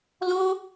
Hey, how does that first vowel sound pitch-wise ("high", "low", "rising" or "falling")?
high